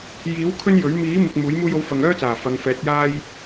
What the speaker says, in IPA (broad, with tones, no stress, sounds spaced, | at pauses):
j iː˨˥ w kʰ ɵ˥ n j ɵ˨˥ ɥ m iː˨˥ m ɪ˨ k̚ m uː˨˥ j m uː˧ j o˨˥ w f ɐ˨ ŋ œː˥ t͡s aː˨˩ f ɐ˨˧ ŋ f ɛː˨˥ t̚ j aː˥ j